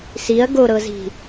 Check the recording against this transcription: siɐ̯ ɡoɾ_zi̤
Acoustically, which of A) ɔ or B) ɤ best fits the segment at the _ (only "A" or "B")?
B